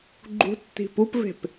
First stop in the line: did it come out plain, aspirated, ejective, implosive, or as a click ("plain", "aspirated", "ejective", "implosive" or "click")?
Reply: click